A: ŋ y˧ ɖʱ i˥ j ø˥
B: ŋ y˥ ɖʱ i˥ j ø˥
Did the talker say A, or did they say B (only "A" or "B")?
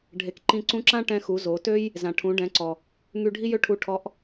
A